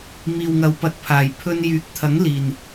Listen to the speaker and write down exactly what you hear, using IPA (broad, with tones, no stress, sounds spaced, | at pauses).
m iː˨ w ŋ ɐ˨ w p ɐ˨˥ t̚ pʰ aː˨˩ j pʰ ɵ˧ n j yː˨˥ k̚ t̪ʰ ɐ˨˥ ŋ l iː˨˩ n